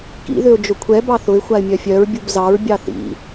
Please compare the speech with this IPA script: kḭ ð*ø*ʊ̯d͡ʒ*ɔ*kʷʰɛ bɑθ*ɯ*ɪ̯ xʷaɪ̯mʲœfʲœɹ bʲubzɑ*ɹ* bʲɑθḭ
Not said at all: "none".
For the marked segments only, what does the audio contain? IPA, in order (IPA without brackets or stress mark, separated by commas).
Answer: ø, ʊ, ʊ, ɹ